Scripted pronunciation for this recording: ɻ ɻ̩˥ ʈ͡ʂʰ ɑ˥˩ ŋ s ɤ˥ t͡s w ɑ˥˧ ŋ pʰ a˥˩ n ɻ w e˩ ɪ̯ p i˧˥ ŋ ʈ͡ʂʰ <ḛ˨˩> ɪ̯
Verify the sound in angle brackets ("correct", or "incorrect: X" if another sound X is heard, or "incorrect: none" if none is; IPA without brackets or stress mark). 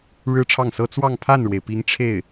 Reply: incorrect: e˥˩